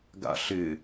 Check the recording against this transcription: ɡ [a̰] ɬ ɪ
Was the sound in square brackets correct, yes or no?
yes